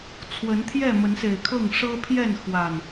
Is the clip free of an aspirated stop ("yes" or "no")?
no